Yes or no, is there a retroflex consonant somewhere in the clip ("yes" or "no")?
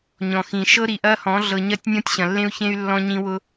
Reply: no